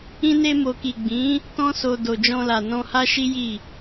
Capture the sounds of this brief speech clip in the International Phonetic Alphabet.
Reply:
ĩ˧ n e˧ m o˨ k i˨ ɡ͡b ĩ˨˦ | t ɔ̃˦ s o˧ d o˨ d͡ʒ ɔ̃˧ l a˨ n ɔ̃˧ h a˦ ʃ i˦ j i˦˨

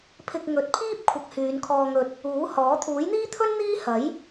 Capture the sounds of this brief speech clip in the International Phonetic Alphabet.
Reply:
pʰ ɪ˧ k̚ ŋ ɵ˨˥ t̚ pʰ iː˥ p̚ kʷʰ ɐ˧ k̚ h yː˨˧ n kʰ ɔː˧ ŋ ɵ˧ t̚ | uː˨˥ h ɔː˨˥ t̪ʰ uː˨˥ j n̪ iː˥ t̪ʰ ɵ˥ n n̪ iː˥ h ɐ˨˥ j

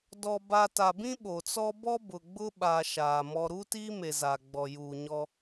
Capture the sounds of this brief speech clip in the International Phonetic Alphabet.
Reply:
d ɔ˨ b a˨ t a˨ b ĩ˦ ɓ o˨ t͡s ɔ˦ b ɔ˦ b ʊ˨ ɡ͡b ʊ˦ ɓ a˨ ʃ aː˨ m ɔ˦ ɾ uː˦ t iː˦ m e˨ z a˨ ɡ͡b ɔ˨ j uː˨ ɲ ɔ˦

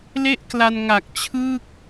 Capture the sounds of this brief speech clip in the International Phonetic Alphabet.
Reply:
l e˥˩ ʔ k l a˧ n ŋ a˨˩ k̚ t͡ɕʰ ɯː˥˩ k̚

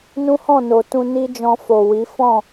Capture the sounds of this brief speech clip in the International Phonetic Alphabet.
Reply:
n ũ˦ h ɔ̃˦˨ n o˨ t ũ˧ n i˦ d͡ʒ ɔ̃˧ f o˨ w i˨˦ f ɔ̃˦˨

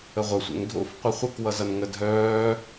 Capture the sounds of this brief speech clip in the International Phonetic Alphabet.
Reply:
ə ʁʷ ə sʷ ḛ ŋ dʱ o̰ f qʷ ɘ χʷ ɘ k w ʌ z ʌ n ŋ ə dʱ œː

